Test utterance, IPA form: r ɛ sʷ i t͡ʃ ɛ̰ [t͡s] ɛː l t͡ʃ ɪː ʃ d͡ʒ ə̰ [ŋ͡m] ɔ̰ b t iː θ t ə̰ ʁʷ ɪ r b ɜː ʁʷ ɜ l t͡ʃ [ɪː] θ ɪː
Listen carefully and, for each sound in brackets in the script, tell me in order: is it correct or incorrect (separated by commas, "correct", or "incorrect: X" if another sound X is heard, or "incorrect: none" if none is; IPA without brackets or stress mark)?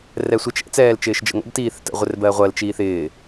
correct, incorrect: ŋ, incorrect: iː